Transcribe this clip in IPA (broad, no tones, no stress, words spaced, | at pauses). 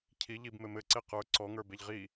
cʰi ʎibmɘ mɘǀe qə˞ ǀɔŋə˞beʎ ʁi